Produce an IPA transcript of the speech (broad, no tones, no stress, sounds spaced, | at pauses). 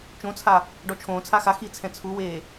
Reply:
t͡ʃ õ t͡sʰ a | ɖ ɔ t͡ʃʰ õː t͡sʰ a x a x i t͡sʰ ɛ̃ t͡sʰ u w eː